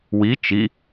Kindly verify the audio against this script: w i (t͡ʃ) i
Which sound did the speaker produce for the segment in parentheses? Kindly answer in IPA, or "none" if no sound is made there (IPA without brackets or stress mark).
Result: t͡ʃ